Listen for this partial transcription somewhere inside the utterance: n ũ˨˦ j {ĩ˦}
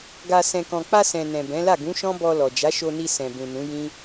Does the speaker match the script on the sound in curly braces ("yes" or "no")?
yes